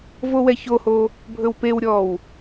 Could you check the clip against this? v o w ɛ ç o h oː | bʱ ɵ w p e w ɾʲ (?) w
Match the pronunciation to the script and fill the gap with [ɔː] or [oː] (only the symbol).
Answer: ɔː